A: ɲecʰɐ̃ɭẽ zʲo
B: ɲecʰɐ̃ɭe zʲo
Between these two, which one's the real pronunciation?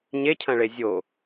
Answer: B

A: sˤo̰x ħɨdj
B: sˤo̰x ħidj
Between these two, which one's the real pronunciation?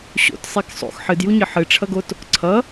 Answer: A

